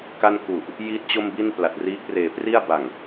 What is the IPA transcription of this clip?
ka˥˩n ku˨˩ʔ | jiː˥˩t̚t͡ɕo˥˩mbi˥˩n pla˨˩t̚riː˦˥k̚reː˨˩pri˥˩a̯ ba˨˩ŋ

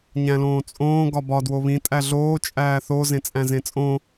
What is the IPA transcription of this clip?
ɲæ̃lõːt͡sʼõː ɡɒbɒ dwoβĩ tʼæɮoː t͡ʃʼæːθo zẽt͡sʼæ̃zẽt͡sʼõ

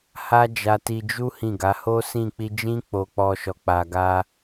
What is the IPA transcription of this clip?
ha˦d͡ʒa˧ti˧ d͡ʒu˦ hĩ˦˨ɡa˨˦ ho˦ sĩ˦˨ k͡pi˧d͡ʒĩ˦ k͡po˧k͡pɔ˧ʃɔ˨ k͡pa˨ɡa˧

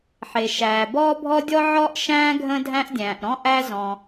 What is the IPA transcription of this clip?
ħe˩ʃæː˩bɔː˥ bʱɔ˥dʲɔ˥ʕɔ˥ʔʃæ̃ː˥ ɡʱə̃ː˥dʱæ̃˥ʔdʲæ̃ː˩ʔɾɔ̃˥ ʔæ˥zɔ̃˩

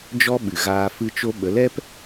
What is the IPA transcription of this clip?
d͡ʒɔ˦ ɓɨ˨ɣaː˧ fɨ˧t͡ʃo˧ɓə˨˦lɛ˦p

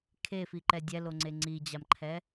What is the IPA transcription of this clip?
kʰefiǃɛ dʲɛloŋ͡ǀe ŋ͡ǀid͡ʑamǃʰɛ

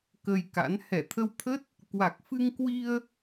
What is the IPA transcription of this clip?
kə˧jka̰˧˥n hɛ˧˩t̪ʰə˧wt̪ʰə˦˥t̚ | kwa˨˩k̚fɨ˧ŋkwi˧ə̯

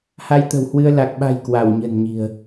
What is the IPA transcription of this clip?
ha˧jt̪ə̤˨˩whwɨ˧ə̯ la˨˩k̚ɓa̤˨˩j kwa˧˩wɲə̤˨˩nɲi̤˨˩ə̯

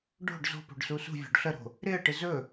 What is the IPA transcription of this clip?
ɖo̤ɖ zo̤po̤ɖ susṳvʲo̤ɖ ɬəɾo̤ | ɾɪə̯ʈɪ zɵ

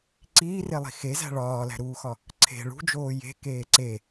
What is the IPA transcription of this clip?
ǀiːrelˠi̤ xezæ̤ ɭɒːlæ̤ɾuːxɒ | ǀʰe̤ ɭṳd͡ʒoː je̤keː ǀe

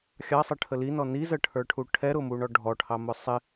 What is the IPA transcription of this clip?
xʲɑsˤəʈʰə linɔ nizəʈʰə˞ʈʰu ʈʰɛɾʊmuɳɔ ɖʱɔʈʰɑmʊ sˤɪ

